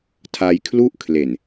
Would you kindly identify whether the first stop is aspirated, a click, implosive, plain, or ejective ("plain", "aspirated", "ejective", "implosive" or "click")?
aspirated